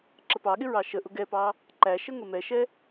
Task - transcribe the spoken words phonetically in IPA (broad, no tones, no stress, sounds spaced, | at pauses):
ǁ ə p ɑ ɠ ɪ ɹ ɑ ʃ ə ʔ ʊ ɡ ɛ p ɑ | ǃ æ ʃ ə ŋ ə m ɛ ʃ ɛ